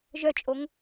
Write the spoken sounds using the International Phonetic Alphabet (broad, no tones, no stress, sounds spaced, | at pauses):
ʒ œ t͡ʃʼ o ŋ